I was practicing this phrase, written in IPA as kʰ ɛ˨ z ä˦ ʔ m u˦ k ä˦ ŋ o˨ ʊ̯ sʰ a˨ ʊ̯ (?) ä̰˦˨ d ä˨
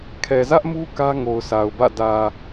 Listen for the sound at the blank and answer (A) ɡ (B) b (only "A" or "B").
B